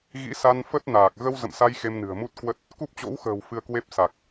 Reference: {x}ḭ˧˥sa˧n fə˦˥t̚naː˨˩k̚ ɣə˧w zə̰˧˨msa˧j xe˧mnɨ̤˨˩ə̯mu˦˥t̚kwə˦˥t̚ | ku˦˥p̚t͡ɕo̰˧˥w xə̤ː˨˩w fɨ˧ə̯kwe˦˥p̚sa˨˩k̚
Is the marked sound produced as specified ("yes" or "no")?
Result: no